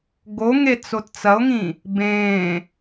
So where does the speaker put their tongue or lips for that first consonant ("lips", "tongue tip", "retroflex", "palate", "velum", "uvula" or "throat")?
velum